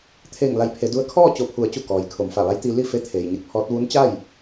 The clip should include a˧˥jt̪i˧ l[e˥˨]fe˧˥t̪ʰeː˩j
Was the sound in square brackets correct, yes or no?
no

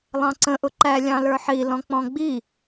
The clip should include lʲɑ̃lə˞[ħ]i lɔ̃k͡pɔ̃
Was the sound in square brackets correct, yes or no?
yes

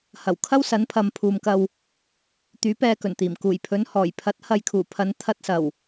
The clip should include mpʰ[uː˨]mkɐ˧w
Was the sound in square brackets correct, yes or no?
yes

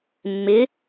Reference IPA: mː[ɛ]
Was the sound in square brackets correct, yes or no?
no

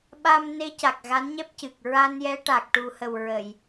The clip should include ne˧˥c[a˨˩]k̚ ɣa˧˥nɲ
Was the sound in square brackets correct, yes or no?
yes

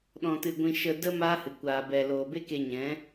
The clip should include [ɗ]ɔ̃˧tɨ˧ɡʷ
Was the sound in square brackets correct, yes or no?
yes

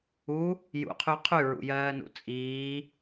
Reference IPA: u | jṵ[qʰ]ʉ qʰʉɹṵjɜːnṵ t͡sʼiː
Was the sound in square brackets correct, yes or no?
yes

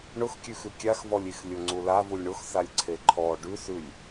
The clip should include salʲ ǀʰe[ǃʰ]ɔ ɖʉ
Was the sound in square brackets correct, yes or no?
yes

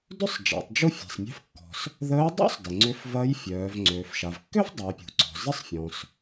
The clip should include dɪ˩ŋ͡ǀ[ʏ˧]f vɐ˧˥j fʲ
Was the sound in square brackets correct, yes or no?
no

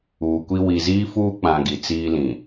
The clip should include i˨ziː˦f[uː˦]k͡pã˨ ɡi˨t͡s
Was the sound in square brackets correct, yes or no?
yes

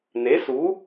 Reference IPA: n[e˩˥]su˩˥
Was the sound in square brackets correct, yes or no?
yes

